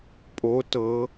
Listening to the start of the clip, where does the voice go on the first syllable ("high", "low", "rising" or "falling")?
rising